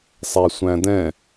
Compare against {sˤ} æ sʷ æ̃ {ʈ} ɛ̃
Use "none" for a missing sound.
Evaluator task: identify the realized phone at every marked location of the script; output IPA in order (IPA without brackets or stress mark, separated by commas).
sˤ, d